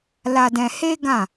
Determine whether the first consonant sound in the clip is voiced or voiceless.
voiced